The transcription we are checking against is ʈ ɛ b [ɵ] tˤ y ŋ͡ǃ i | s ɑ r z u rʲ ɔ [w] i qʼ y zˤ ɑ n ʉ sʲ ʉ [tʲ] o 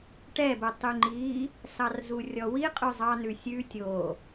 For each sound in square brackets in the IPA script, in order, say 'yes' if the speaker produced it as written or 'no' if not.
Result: yes, yes, yes

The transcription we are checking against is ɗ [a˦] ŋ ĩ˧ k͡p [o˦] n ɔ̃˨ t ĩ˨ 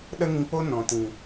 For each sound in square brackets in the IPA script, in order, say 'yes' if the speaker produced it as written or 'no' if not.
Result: no, yes

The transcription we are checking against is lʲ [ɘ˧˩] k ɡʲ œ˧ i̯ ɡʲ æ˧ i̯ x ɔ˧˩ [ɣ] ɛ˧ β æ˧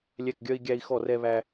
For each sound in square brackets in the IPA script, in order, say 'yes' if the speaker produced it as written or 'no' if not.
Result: no, no

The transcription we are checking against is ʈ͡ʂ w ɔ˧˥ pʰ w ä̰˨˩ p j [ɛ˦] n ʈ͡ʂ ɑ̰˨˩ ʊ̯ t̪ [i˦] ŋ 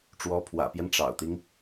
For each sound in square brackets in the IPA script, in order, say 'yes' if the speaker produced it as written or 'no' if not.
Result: yes, yes

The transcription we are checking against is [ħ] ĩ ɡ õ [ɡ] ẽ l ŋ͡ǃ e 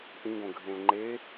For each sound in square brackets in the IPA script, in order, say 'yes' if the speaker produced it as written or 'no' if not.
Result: no, no

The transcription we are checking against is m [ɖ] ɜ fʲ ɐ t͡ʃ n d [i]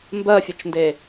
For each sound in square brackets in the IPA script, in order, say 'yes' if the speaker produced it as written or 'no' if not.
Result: no, no

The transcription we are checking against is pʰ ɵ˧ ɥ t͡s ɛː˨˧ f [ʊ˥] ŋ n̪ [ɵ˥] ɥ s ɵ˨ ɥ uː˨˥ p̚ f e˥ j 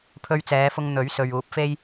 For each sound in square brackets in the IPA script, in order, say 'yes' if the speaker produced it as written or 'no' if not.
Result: no, no

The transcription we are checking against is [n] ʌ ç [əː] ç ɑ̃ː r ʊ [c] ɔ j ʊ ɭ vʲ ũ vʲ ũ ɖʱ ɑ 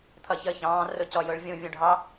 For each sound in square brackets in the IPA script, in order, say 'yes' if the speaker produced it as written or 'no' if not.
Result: no, yes, yes

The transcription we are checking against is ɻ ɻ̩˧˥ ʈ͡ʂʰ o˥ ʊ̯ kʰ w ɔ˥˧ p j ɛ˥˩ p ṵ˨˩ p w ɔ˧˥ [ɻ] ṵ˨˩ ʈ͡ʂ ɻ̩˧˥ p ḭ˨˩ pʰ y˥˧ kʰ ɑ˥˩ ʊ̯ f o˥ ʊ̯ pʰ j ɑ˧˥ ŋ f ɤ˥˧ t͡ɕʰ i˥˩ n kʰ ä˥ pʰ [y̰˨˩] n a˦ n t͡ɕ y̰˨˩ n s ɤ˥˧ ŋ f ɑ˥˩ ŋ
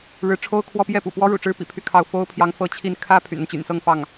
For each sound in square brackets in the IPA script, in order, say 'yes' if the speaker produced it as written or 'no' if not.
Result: yes, yes

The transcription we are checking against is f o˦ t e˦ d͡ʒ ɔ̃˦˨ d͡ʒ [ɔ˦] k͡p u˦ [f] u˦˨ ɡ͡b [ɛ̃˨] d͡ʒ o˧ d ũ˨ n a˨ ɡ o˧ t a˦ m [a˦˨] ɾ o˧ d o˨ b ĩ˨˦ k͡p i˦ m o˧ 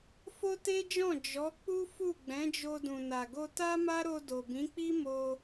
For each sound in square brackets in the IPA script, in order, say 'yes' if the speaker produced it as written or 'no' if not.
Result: no, yes, no, no

